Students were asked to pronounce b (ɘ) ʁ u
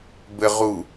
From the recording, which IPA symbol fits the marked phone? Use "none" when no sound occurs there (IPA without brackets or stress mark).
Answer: ɘ